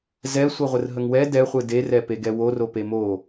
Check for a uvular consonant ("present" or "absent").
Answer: present